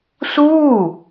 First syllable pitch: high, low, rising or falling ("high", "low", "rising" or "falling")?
falling